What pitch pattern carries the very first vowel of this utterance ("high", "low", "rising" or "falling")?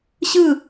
falling